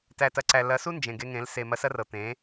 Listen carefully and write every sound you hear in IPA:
tæ˨tɐ˨ǀæ˨ lɐ˨˦su˦ nd͡ʒẽ˨ɡe˧ŋẽ˨˦l se˨ mɐ˧sɐ˦rɤ˨ t̪ẽ˨˦

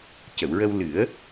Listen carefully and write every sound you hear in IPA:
cə˨˩˨wɹə˧w lɨ˨˩˦ə̯

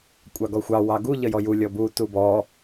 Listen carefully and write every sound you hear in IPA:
kʷʼɑɡɔxʷɑ wɑɡu ʎəjɔju lʲɔbu tubɔ

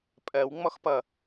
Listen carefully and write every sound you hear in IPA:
pʼɜw ŋ͡mɔxpʌ

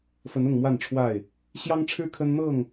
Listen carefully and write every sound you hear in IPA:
fə˨˦nʊ˥˨ŋmwa˥˨nʈ͡ʂʰwa˥˨ɪ̯ | ɕjɑ˦ŋʈ͡ʂʰɻ̩˦ kʰə˦nn̪ɤ˥˨ŋ

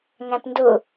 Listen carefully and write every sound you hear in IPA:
ŋæ̃pndʊ

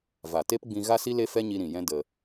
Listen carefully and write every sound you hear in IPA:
va˨ te˦pɡ͡bĩ˧ ɣa˦si˦ le˦fɛ˦ɲi˧ ɾĩ˨jɛ̃˦ də˧

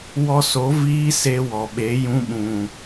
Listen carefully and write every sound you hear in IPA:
wɔ˧so˨˦ viː˦se˧wɔ˨ ɓe˨˦jũ˧ ɓũ˨

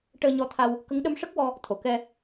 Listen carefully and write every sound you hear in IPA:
ʈəː˧ɲɔ˧t̪ʰa˧w | kə˧˥ŋɗə˧˥mʂə˦˥k̚wɔ˧ | t̪ʰo˨˩˨kɛ˧

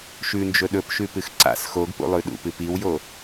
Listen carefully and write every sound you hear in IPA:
ʃʉnd͡ʒɵ ɗɵpʃʉpɨx ǀa̰s xoɡpṵlˠʉ ɗṵpɨ piwjo

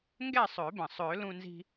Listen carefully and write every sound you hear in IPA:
ŋɡɛ˥˨sˤø˨˩˦bə̃˩ sˤø˨˩˦lũ˧nzi̤˧

